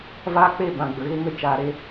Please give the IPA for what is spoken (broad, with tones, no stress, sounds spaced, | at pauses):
v aː˦ k͡p e˦˨ b ã˨ ɡ͡b ə˨ ɣ e˦ ŋ ə˧ t͡ʃ aː˧ ɾ e˦